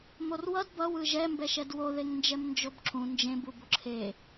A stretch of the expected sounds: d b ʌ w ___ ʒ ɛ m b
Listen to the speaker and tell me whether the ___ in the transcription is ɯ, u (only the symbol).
ɯ